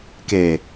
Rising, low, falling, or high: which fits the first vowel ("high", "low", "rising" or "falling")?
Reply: low